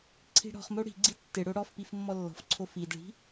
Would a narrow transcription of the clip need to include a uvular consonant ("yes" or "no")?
yes